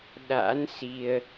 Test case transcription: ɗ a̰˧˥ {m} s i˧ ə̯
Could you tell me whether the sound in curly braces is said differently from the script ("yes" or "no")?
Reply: yes